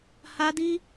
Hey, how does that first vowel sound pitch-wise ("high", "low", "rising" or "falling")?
high